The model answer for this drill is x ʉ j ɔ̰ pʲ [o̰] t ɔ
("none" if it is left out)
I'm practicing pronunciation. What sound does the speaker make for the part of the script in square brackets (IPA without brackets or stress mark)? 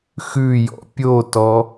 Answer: o